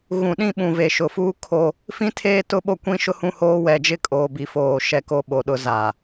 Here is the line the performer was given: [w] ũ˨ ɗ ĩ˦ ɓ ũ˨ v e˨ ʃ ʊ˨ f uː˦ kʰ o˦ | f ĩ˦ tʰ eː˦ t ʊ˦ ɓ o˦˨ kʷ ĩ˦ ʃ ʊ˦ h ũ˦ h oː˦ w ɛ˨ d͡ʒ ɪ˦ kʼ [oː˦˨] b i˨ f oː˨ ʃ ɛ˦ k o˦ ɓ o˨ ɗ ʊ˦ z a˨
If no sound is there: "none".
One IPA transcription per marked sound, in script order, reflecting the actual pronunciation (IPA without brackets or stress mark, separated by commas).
ɣ, oː˨